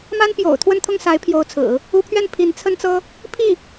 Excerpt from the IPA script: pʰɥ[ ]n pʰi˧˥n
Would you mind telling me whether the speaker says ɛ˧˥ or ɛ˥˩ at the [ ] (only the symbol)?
ɛ˥˩